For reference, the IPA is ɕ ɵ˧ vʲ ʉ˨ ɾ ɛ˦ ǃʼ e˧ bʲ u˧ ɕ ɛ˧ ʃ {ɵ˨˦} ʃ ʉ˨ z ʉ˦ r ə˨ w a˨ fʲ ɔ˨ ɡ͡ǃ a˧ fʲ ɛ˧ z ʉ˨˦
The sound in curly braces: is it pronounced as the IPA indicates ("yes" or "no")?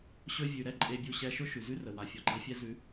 no